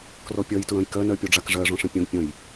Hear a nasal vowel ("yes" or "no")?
yes